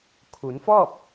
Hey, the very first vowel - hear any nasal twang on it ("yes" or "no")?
no